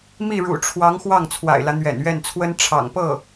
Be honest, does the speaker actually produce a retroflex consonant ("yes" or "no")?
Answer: yes